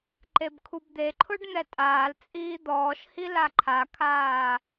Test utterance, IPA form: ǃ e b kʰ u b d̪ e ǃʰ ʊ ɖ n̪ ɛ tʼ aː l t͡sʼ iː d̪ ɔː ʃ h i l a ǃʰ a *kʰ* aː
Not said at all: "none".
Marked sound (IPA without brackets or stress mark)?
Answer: kʰ